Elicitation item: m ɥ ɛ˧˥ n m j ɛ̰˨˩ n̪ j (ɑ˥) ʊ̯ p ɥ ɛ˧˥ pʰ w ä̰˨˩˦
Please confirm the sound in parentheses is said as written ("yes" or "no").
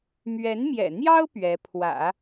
yes